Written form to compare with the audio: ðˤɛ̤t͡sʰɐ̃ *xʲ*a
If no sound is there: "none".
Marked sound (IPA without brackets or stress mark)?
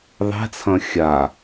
xʲ